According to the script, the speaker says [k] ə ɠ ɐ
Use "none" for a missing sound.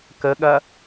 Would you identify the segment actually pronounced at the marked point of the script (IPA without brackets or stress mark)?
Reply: k